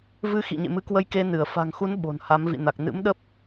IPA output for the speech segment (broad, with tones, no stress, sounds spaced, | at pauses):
v ɨ˧ x ḭ˧˨ ɲ ḛ˧˨ m ɨ˨˦ k w ə˧ j k e˧ n ɨ˧˩ ə̯ f a̤˨˩ ŋ x u˨˦ n ɓ o̤˨˩ n h a˨˦ m v ḭ˧˨ n a˨˩ k̚ n ɨ̰˧˥ m ɗ ə˦˥ p̚